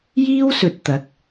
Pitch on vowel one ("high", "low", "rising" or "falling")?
high